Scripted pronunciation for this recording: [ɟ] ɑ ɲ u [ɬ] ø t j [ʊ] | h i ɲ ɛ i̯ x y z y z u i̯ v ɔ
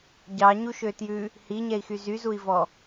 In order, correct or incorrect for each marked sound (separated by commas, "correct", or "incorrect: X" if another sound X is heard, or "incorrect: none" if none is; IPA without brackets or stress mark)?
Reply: correct, incorrect: ʃ, incorrect: ʉ